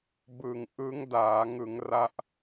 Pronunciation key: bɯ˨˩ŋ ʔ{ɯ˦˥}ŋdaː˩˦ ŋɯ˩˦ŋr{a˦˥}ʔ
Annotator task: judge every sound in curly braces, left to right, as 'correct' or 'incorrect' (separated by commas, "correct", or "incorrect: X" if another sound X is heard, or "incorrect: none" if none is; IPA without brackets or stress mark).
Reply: correct, correct